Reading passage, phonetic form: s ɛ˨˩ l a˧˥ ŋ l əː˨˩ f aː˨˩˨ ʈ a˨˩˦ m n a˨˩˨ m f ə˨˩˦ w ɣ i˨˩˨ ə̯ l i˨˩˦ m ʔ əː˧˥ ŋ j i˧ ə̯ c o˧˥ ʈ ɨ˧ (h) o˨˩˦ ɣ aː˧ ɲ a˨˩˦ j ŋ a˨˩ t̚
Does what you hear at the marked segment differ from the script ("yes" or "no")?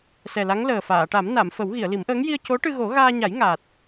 yes